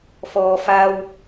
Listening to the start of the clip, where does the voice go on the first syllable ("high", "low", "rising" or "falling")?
low